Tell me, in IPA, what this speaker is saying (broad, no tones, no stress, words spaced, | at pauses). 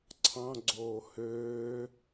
ǀʰɑ̃ɡ͡ǀoː høː